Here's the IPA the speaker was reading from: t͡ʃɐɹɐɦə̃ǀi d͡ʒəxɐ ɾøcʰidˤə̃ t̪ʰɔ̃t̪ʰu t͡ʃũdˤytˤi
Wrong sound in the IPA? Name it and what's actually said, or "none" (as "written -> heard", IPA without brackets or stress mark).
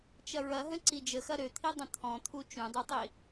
cʰ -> t̪ʰ